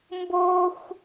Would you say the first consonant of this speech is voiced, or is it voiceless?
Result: voiced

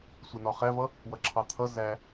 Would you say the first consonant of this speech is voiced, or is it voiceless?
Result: voiceless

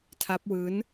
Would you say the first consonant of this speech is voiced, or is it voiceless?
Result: voiceless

